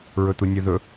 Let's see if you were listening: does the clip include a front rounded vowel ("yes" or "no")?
yes